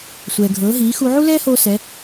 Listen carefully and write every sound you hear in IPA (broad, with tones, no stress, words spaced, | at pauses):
sʷɛː˩ ɡʱɤː˩˧ɦiː˩˧ xu˧ ʕu˥lɛː˥hoː˧ sɛ˩˧